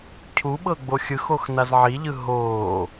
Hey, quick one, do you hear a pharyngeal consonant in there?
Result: yes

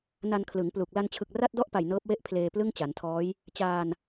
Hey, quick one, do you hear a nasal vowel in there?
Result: no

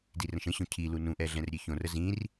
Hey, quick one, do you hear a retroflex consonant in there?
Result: no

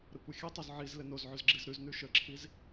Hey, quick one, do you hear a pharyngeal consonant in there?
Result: yes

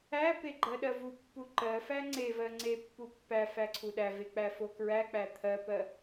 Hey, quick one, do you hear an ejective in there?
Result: no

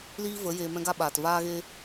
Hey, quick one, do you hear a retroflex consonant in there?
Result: no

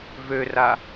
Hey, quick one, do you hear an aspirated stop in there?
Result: no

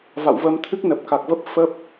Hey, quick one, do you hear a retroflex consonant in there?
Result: no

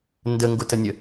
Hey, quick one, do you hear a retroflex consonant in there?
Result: no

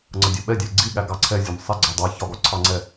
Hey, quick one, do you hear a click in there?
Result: yes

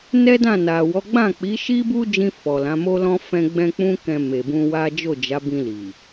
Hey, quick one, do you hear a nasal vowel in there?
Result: yes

